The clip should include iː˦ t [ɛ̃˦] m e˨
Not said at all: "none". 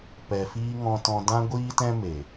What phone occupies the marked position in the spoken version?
ɛ̃˦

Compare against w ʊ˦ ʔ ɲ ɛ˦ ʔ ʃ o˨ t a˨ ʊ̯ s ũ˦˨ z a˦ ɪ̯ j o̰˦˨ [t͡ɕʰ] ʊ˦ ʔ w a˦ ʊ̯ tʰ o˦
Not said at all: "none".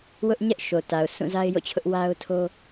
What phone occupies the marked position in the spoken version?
t͡ɕʰ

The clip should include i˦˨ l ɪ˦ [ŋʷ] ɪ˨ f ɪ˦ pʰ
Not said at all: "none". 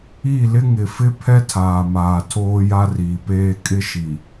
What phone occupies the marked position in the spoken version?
ŋ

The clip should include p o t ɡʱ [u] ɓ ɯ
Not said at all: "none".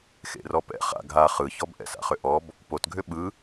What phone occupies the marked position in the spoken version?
ʏ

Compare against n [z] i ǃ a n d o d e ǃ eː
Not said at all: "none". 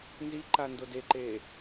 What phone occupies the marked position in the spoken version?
z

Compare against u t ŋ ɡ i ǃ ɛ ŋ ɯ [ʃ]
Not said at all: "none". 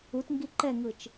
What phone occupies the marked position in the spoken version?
t͡ʃ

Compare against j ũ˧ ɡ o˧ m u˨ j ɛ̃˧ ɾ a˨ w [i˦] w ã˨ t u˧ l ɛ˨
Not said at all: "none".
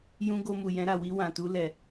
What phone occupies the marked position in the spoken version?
i˧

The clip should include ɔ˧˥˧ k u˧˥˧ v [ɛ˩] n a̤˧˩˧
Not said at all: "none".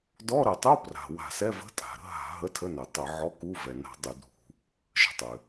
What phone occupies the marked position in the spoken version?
ɛ˩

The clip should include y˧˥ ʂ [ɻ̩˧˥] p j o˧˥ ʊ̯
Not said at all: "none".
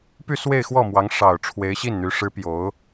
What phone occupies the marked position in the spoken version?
ɻ̩˧˥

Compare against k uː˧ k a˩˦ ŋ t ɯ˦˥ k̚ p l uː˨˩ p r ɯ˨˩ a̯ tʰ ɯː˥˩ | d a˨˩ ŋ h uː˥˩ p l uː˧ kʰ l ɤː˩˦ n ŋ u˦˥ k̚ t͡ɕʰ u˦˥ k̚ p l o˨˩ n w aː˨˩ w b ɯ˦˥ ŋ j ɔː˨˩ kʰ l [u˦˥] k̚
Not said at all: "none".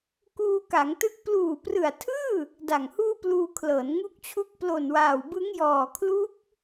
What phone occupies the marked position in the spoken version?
u˦˥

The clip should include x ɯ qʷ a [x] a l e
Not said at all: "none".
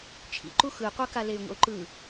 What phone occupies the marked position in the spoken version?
k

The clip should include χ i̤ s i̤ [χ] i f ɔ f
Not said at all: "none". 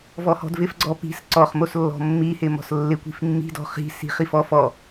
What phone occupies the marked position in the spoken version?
χ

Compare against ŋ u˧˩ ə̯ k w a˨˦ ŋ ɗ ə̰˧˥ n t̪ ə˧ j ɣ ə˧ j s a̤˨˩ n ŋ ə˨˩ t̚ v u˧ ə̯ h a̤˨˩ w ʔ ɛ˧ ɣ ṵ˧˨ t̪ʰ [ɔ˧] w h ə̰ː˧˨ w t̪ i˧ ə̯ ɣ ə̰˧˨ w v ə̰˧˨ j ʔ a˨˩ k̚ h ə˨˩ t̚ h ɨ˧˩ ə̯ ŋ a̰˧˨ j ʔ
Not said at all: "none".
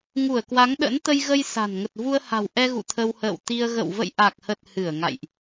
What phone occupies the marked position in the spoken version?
ə˧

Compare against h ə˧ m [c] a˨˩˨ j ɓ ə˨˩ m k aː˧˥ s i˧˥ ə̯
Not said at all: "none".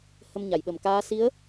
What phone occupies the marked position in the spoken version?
ɲ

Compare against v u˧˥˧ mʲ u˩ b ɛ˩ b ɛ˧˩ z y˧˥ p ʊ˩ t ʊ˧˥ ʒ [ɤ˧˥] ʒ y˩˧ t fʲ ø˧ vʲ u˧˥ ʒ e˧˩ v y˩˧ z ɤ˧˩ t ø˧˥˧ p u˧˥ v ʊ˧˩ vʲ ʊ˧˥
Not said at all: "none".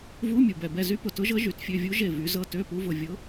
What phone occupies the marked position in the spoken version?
ɤ˧˥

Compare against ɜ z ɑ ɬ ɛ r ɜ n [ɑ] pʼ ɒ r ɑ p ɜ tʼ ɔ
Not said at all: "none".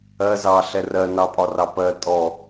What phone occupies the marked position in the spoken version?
ɑ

